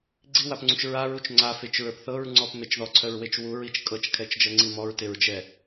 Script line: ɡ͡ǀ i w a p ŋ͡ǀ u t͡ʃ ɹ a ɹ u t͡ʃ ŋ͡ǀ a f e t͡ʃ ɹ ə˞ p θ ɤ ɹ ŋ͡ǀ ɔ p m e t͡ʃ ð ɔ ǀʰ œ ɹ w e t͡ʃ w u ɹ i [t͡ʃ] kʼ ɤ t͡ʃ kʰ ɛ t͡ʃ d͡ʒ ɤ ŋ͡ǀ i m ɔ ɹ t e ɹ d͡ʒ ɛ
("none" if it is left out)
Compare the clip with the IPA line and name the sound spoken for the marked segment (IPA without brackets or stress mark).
t͡ʃ